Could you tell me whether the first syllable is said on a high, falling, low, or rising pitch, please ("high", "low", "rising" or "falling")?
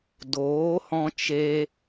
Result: rising